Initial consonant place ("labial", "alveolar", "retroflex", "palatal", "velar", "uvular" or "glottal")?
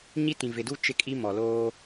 palatal